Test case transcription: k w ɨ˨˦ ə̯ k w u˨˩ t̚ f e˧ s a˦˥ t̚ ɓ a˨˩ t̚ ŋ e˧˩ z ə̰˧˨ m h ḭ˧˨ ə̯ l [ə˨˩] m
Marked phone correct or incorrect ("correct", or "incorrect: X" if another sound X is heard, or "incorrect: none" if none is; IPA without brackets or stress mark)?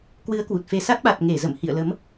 incorrect: ə˨˦